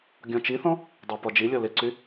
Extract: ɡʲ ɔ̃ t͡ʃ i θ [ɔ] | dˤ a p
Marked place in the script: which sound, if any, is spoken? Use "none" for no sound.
ɔ̃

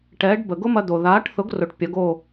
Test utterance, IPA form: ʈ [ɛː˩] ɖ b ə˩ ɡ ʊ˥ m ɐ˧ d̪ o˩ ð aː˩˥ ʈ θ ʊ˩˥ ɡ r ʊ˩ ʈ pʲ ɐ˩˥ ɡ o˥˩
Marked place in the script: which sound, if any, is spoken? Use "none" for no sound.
ɛː˩˥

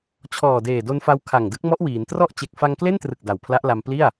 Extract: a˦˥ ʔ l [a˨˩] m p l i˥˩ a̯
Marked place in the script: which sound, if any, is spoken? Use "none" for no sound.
a˧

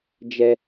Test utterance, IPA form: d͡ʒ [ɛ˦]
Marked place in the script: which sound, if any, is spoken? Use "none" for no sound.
ɛ˦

